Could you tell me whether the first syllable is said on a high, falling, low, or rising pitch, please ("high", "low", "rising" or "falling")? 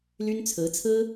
high